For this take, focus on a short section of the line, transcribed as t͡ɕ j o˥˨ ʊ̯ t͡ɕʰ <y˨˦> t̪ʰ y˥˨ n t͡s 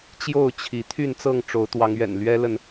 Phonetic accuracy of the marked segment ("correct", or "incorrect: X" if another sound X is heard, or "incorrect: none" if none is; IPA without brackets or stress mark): incorrect: i˨˦